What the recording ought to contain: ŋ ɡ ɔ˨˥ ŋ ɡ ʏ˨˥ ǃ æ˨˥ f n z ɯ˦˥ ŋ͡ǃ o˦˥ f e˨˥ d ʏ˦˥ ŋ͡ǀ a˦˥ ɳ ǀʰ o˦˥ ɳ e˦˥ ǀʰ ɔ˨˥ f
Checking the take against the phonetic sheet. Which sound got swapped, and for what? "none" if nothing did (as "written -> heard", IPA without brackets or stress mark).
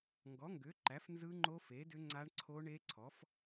none